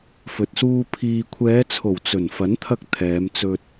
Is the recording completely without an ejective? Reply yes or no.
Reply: yes